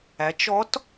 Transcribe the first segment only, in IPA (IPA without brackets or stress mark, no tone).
æ